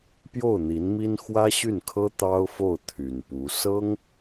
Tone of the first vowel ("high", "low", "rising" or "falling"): falling